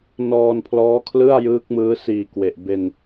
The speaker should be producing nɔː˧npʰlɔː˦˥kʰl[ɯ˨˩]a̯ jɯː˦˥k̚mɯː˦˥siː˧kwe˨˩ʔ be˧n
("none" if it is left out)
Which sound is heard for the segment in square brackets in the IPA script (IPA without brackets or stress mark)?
ɯ˥˩